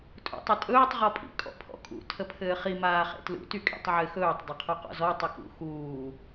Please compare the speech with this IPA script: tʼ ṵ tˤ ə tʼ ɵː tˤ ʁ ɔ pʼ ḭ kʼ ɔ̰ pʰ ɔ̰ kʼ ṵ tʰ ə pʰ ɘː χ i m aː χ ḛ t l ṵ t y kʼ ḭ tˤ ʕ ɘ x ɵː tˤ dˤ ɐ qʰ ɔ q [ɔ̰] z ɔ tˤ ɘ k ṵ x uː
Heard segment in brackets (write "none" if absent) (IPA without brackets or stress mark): ɔ̰